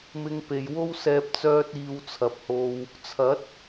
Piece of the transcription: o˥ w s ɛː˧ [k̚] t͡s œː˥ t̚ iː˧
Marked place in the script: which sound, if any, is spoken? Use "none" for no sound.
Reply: p̚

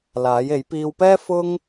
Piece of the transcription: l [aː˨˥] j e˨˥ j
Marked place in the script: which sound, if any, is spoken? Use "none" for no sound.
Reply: aː˨˥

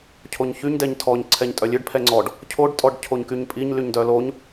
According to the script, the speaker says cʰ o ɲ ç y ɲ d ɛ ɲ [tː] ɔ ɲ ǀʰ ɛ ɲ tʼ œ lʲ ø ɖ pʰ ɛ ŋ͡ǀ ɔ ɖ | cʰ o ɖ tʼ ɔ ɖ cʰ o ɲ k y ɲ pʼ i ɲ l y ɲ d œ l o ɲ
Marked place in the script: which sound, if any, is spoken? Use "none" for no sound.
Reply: tʰ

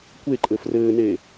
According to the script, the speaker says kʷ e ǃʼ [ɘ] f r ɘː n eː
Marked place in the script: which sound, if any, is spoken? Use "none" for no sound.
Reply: ɘ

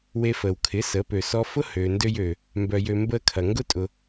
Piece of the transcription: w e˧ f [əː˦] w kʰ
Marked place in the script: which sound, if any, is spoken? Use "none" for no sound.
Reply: əː˨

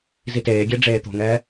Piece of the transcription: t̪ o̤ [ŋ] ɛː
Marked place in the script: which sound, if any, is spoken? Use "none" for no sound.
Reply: ŋ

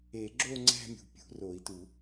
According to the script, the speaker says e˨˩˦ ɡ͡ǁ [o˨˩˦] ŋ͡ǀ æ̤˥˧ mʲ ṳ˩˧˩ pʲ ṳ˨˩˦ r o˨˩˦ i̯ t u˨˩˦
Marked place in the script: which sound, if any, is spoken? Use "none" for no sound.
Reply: o˥˧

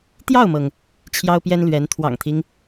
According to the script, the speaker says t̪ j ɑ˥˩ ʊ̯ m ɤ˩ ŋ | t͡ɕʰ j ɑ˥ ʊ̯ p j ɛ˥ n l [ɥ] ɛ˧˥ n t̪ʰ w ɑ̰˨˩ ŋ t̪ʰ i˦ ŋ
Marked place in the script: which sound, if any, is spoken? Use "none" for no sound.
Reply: ɥ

